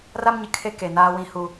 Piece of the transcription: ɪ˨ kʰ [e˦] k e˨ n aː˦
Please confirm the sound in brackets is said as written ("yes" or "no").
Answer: yes